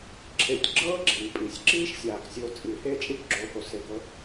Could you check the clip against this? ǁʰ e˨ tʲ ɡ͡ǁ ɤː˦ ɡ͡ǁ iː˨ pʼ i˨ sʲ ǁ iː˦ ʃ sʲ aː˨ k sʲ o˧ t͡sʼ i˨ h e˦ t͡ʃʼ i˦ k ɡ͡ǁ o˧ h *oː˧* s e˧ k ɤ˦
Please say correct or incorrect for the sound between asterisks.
incorrect